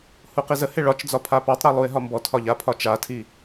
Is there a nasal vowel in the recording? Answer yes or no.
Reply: no